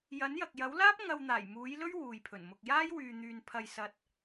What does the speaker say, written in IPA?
jɐ˨˥njɐ˨k̚jɐ˨˥wlaː˥p̚ ŋɐ˧wn̪aː˨˩jmuː˨˥jlɵ˥ɥ wuː˨jpʰɵ˨˩n mʊ˨k̚jaː˥j wyː˧n̪yː˧n pʰɐ˧jsɐ˧t̚

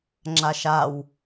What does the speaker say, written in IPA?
ŋ͡ǁaʃaw

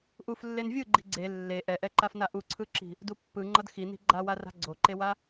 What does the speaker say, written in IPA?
ʔuflːen vʲɯɡ͡ǃi̤ ɡ͡ǀe lːe ʔɛʔɛǃafna ʔuǀʰɯǁi̤ | dupːɯŋ͡ǃʌd xini̤ ɡ͡ǃawara̤ ɡ͡ǀoǃewa

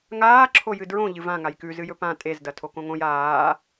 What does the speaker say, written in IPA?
ŋaːǁʰojɨ dɹõ ʎɨvã ŋajkʉzɨjɵ pã tʼezdɐ tʰokõŋõj aː

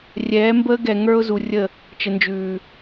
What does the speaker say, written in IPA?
rʲɛː˨˦mbəː˦ɡɛ˨ŋə˞˦ʊ̯ zu˨rʲə˦˨ | t͡ʃə˨nd͡ʒʉː˨

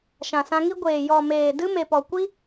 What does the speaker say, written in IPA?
ʃã˨sã˧ŋi˦ ɡʷeː˨ jɔ˨meː˨ dɨ˧ me˨pɔ˨ kʷi˦

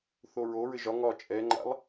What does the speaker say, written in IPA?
θoɹoɹɘ ʒɒ ŋɒ t͡ʃʼɛŋ͡ǃa̰lˠ

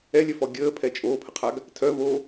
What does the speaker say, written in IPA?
ɛlʲœfɔ ɡʲəːpʰɛ t͡ʃʼoːpʰəqʰaɡ | tʰœvoː

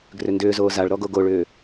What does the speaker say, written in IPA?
ɡrʏndʏːzoː zaɭɾɔ ɡoɡoɭʏː

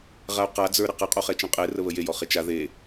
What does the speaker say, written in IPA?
ʁau̯qa d͡zə˞ɾɘqə qʼoχɛt͡ʃɛ̃qʼe rəβəje jɔχet͡ʃa ðe

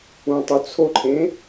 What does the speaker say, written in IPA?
ũtˤut͡sʰoǃʰẽ

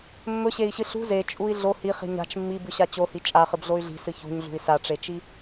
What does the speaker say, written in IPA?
mːɵɕei̯ɕɨ ɬṳ zet͡ʃʼui̯ ɮo hiχi̤ ɲa̤t͡ʃ mːibʉɕa t͡ɕohi t͡ʃʼaχɨbɮoy̯ ɮi̤sɨ çṳɲɮṳi̯ saʈ͡ʂet͡ʃi

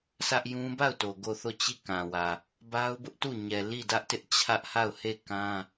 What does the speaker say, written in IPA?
sʰä˦ʔjũ˦ ba˦˨ʊ̯to˨ ɡo˦˨θo˦˨ t͡ɕi˦˨kã˨wä˨ | ba˦ʊ̯bʊ˦ʔtu˦˨ ɲɛ˨li˦˨dä˦ʔtɪ˦ʔ t͡ɕʰä˦ʔha˦˨ʊ̯he˦˨ kã˦

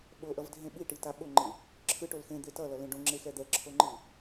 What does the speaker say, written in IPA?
ɓoʔʌvdʱẽ ɓiʈita ɓoŋ͡ǃɯ | ǁʰɯʈol xẽd̪e tʌlʌlẽ ɖõŋ͡ǁexɛ d̪ɛǁʰoŋ͡ǃɯ

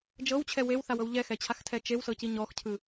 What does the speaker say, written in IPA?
d͡ʒɤwt͡ɕʰɛ wewθawɤw ʎɛxɛt͡ɕʰaxtʰɛ t͡ʃewsɤci ɲɔxcʰɯ

